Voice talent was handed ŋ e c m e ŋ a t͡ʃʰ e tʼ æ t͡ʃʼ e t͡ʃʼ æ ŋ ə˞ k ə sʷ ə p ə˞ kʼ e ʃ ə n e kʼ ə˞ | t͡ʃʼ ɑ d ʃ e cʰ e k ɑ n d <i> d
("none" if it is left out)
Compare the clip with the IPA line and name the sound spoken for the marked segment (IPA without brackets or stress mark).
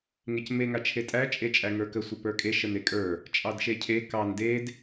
e